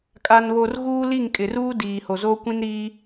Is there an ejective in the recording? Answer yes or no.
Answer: yes